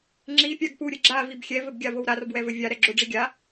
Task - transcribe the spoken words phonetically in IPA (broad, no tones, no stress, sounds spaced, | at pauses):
ŋ͡ǁ i pʲ a ɡ p u ɾʲ ɘ ɡ͡ǁ a v i b xʲ ɛ v ɘ b ɡʲ a v o w ɾ a r b w ɛ v ɘ vʲ a ɾ ɛ ɡ͡ǁ o ɖ͡ʐ i ɡʲ a